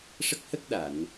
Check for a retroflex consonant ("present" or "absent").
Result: present